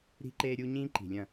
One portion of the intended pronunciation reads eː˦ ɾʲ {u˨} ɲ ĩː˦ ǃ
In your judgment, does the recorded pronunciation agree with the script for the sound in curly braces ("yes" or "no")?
no